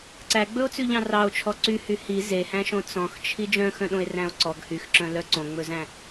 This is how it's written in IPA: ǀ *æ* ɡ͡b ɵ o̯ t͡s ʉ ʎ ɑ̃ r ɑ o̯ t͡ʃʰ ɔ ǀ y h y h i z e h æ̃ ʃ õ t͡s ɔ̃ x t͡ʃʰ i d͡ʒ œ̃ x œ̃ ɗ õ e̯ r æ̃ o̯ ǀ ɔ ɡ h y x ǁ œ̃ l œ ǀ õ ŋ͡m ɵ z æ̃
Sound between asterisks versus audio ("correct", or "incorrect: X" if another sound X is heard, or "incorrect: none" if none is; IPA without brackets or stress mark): correct